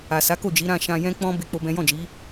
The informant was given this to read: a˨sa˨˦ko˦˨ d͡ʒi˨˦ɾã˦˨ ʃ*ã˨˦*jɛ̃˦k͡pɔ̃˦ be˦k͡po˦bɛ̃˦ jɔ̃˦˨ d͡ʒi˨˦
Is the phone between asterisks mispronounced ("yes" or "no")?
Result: yes